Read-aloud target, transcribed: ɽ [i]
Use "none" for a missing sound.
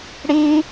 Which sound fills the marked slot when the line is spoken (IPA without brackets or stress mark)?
i